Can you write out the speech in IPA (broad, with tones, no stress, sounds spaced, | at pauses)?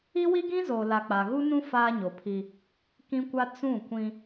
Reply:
i˦ w i˦ ɡ ĩ˦ z o˨ l a˨ k͡p a˨ ɣ u˦ n ũ˦ f aː˦ ɲ o˨ pʰ i˦ | k ĩ˦ kʷ a˦ t͡s ũ˦˨ kʷ ĩ˦